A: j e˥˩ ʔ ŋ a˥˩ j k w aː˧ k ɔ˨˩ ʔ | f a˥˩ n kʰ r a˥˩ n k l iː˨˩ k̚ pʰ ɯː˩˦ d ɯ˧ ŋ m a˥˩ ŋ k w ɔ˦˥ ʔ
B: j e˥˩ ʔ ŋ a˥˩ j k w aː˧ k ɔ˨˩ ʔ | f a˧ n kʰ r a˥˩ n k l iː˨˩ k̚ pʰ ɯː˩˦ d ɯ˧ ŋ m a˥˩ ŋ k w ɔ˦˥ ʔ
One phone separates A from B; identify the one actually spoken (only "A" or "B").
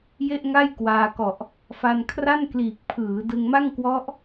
B